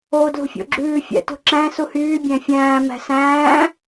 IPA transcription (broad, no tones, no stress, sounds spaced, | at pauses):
o d l ṳ fʲ o̰ ɡ͡ǁ ʉː fʲ æ̰ t ṳ ǁ æ̃ s u h yː bʲ æ̃ fʲ æ̃ː m æ̤ s æ̃ː